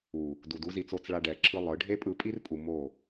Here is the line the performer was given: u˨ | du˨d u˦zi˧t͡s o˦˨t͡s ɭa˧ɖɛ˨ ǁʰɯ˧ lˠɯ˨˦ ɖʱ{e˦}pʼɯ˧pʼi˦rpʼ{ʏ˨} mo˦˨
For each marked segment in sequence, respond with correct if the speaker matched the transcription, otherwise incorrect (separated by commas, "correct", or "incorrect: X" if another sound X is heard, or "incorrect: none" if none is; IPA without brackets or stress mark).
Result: correct, incorrect: u˨